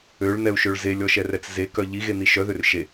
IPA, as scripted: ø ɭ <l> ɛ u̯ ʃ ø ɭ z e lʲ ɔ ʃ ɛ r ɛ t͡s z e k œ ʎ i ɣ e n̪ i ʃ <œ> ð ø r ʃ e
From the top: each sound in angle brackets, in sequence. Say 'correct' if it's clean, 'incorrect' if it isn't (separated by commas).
incorrect, correct